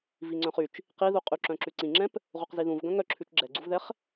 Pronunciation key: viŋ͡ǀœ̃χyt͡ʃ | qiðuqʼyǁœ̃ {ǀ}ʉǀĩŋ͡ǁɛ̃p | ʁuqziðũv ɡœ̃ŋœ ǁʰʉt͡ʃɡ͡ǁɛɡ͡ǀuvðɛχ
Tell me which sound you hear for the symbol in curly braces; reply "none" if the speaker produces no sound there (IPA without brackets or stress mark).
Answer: ǁ